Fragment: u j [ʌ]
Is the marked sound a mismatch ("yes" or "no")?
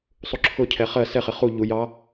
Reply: yes